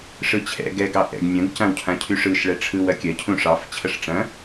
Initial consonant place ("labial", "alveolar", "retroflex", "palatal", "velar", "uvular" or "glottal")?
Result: retroflex